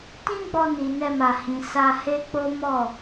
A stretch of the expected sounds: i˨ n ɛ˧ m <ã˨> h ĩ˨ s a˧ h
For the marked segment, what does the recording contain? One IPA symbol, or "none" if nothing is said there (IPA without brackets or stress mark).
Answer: a˨